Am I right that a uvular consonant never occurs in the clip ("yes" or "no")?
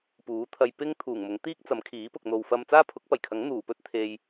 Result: yes